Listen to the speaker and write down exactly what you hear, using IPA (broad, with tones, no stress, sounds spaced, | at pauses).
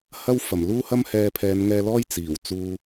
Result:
h ɐ˥ w f ɐ˨˩ m l uː˥ h ɐ˥ m h ɛː˧ pʰ ɛː˨˧ n ŋ ɛː˧ l ɔː˥ j t͡s iː˨˩ w t͡s uː˧